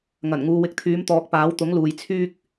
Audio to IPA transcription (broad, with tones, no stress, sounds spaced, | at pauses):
ŋ ɐ˨˩ n ŋ uː˨ w ɪ˨˥ k̚ t̪ʰ yː˨˧ m t̪ ɔː˨˥ k̚ p aː˨˥ w t̪ ʊ˨˥ ŋ l uː˨ j t͡sʰ yː˥ k̚